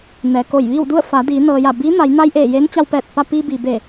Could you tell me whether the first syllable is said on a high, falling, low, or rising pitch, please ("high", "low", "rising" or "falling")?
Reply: low